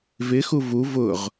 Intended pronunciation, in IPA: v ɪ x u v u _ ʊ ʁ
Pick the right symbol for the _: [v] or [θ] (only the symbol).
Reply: v